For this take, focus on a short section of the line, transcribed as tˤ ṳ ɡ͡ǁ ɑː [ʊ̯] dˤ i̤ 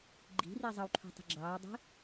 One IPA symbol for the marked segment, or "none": ʊ̯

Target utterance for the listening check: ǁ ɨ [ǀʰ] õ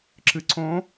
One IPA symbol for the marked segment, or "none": ǀʰ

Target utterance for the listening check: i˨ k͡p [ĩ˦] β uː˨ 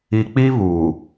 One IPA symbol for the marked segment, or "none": i˦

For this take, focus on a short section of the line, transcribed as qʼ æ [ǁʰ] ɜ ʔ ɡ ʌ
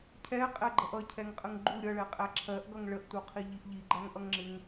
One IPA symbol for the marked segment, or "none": ǁʰ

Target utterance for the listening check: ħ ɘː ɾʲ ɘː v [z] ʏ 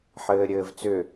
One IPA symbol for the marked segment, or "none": t͡s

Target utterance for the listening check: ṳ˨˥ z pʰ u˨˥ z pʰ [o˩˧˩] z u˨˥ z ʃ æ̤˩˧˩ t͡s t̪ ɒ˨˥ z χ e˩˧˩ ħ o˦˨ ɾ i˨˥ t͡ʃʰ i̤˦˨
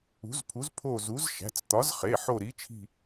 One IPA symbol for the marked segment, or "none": o˦˨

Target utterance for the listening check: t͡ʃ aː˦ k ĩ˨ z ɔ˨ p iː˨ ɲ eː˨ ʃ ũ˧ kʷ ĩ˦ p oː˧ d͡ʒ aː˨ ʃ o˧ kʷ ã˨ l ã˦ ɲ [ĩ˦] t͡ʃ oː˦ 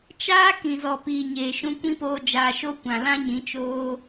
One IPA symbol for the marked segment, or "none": ĩ˨˦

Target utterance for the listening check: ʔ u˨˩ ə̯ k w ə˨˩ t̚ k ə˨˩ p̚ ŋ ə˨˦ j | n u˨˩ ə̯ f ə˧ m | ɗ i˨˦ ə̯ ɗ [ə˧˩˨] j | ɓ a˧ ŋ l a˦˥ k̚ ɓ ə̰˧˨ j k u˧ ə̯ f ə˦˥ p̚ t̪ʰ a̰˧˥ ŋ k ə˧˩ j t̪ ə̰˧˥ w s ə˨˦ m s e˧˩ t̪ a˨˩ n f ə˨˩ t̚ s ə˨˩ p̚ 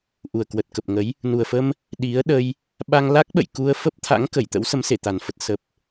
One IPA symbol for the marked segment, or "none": ə˧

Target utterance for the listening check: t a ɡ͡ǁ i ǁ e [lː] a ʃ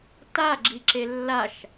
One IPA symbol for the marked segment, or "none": lː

